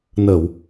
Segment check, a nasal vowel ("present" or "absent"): absent